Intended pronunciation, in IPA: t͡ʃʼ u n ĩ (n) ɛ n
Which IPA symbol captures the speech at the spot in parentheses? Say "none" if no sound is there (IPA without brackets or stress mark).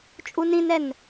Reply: n